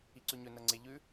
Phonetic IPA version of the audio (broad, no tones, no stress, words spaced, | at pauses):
iǀʉɲɵ nɐŋ͡ǀe ʎʉ